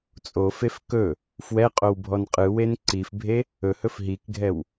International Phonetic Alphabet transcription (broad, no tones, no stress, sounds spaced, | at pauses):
t͡sʼ o f e f k ɵ | f w ɛ qʼ o w bʱ ɔ n qʼ ɯ w e n ǀ i f bʱ e | ɵ h ɵ f ɦ i k ɡʱ ɛ w